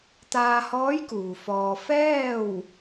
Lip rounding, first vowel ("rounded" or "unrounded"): unrounded